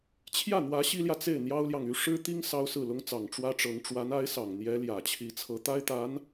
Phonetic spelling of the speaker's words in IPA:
t͡ɕʰ j ä˥˩ n̪ w ä˧˥ ɕ i˥ l j ä˨ t͡s e˥˩ ɪ̯ n̪ j ɑ˥ ʊ̯ l j ɑ˨ ŋ y˧˥ ʂ ɻ̩˥ t̪ i˥ ŋ s ɑ˥ ʊ̯ s ɹ̩˥˩ l ʊ˥ ŋ t͡s ɑ˨˩ ŋ ʈ͡ʂ w ä˥ ʈ͡ʂ ɤ˧˥ ŋ ʈ͡ʂ w a˧˥ n a˧˥ ɪ̯ s ɑ˨˩ ŋ n̪ j ɛ˧˥ l j ä˨˩ t͡ɕʰ i˧˥ t͡sʰ ɤ˧˥ t̪ a˥ ɪ̯ t̪ a˧˥ n

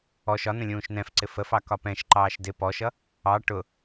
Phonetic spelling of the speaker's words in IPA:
ɔ ʃ ɒ n ə̃ lʲ ũː ʃ n ɛ̃ f ǀ ɪ f ə f ɑ k ɒ p ɛ̃ ʃ ǃ ɑː ʃ d ɪ p ɔ ʃ ʌ | ɑ ʈ ʊ

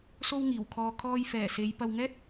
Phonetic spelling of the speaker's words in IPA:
s o˥ w ŋ iː˨˩ w kʰ ɔː˧ kʰ ɔː˧ j f ɛː˨˩ s e˨˧ j p ɐ˧ w ŋ ɛː˥ t̚

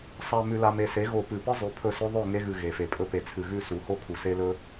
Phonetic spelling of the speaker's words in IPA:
sˤ a˨ m ʉ˨ l a˨ m e˨ s e˨˦ ɣ o˨ p ɨ˨ p ɨ˦ zˤ ʉ˨ pʰ ɵ˦˨ s ɵ˦ ðˤ ɵ˦˨ ŋ e˦ ɣ ɨ˨ ɣ e˨ f e˨ pʼ ɵ˦ p e˨ t͡sʰ ɨ˨ ɣ ʉ˦˨ s u˨ h o˦ kʰ u˨ s e˦ l ɵ˦

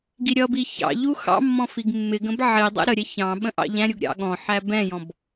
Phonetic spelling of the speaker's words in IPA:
ɡ i ɾʲ ʌ b i ç ɑ̰ ʎ u x ɑ̰ mː ɔ̃ f i ɡ mː ɪ ɡ ə̃ b ʕ i dˤ ɛ̰ ɾ ə ɾʲ ɛ ç ɑ̃ ɓ ə̃ ʔ ɑ̰ ʎ æ̃ ɾʲ u ɡ ɾʲ ɑ̰ ɠ ɔ̃ ħ æ b ɛ̃ j ɔ̃ b

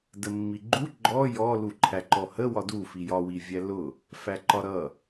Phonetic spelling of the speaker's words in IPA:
d ə mː i ɡ͡ǃ u ɡ͡ǃ ɔ j ɔ l u ǃʰ æ ǃ ɔ h ə w ɒ d u f i j ɒ w i vʲ æ l ʊ | f æ ǃ ɒ ɾ ʌ

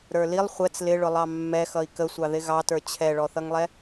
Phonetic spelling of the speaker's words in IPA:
ɾ ə˞ l i lˠ χʷ ɛ t͡s l ɪ ɭ ʊ lˠ ɑ mː ɛ x ʌ i̯ k ə sʷ ɑ ð ɪ ɣ ɑ t ə˞ t͡ɕʰ ɛ ɭ ɔ θ ʌ ŋ lˠ ɛ

